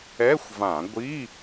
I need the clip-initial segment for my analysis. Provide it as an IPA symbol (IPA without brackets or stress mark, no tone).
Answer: ɛ